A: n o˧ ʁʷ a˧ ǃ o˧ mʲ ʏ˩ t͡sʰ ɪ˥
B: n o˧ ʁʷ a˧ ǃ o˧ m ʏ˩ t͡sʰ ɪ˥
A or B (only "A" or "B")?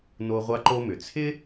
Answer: B